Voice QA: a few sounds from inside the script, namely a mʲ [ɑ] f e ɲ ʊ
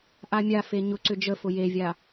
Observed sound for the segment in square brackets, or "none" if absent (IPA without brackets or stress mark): a